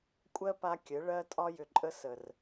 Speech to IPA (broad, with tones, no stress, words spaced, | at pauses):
kʷʼɜ˦pa˧ kʲɘ˨˦ ɭɜ˧tʼɒ˧ jʏ˨ǃʼə˧ sə˨r